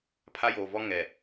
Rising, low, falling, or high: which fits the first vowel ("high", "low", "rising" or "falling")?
high